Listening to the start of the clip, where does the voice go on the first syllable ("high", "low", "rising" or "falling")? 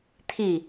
falling